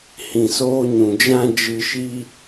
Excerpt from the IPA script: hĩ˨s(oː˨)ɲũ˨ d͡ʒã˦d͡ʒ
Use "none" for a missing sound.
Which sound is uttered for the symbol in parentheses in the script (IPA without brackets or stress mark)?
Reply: oː˧